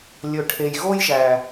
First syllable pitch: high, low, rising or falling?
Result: low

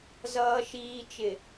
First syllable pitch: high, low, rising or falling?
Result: low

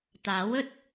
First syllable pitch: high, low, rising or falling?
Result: rising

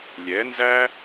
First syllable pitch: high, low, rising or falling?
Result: rising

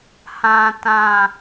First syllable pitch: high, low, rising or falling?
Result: low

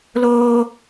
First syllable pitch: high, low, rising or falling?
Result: high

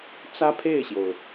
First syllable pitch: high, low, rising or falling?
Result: high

